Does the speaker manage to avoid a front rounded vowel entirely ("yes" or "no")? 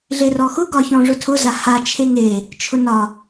yes